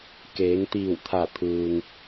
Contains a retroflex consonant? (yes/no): no